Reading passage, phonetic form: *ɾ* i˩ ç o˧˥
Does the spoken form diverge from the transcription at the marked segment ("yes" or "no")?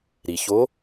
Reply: no